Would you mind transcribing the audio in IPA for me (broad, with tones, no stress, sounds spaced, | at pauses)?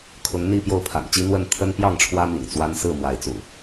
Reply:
kʰ ʊ˨˦ ŋ n̪ i˥˨ p j o˥˨ ʊ̯ pʰ a̰˨˩ n t͡ɕ i˦ n̪ w ə˥˨ n t̪ʰ ə˦ n p j ɑ˥˨ ŋ ʈ͡ʂʰ w ä˦ m ḭ˨˩ ŋ t͡s w a˦ n s ɹ̩˥˨ m w a˨˦ ɪ̯ t͡s ṵ˨˩